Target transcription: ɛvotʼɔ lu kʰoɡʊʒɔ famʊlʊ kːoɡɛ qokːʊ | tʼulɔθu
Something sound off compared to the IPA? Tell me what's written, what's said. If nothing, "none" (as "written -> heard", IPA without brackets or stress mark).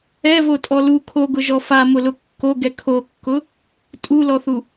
q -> kʰ